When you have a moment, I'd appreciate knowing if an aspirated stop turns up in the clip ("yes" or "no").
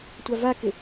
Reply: no